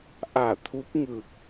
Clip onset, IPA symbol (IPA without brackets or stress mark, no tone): ʔ